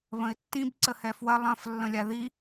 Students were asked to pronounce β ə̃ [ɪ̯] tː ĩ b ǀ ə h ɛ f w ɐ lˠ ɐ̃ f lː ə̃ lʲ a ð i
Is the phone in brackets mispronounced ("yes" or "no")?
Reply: no